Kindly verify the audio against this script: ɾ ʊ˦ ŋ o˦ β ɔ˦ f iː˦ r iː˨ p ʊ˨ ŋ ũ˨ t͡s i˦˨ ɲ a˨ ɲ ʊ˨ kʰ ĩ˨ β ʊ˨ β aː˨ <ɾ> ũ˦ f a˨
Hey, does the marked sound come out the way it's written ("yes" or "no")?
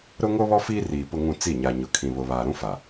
yes